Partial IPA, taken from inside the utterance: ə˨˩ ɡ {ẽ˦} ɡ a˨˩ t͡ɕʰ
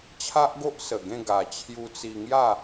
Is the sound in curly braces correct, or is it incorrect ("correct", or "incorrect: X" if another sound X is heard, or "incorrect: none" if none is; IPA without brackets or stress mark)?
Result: incorrect: ẽ˥˧